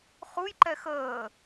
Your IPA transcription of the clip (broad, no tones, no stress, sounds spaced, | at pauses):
χ u j ǃ ɛ x əː